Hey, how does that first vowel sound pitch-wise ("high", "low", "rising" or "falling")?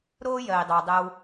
high